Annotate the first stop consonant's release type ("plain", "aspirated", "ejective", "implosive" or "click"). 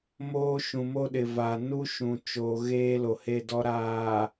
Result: implosive